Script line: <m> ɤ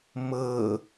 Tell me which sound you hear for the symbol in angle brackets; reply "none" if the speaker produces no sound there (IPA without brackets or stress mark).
m